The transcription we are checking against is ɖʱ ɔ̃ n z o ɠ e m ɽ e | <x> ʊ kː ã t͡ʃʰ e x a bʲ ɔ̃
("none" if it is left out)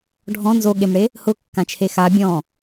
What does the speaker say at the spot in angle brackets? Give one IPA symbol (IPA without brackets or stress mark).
h